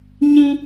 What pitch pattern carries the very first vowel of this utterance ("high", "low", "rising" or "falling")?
high